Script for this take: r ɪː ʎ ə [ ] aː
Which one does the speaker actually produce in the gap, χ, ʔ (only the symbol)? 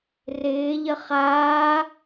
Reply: χ